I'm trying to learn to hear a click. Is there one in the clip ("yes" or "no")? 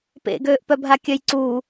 yes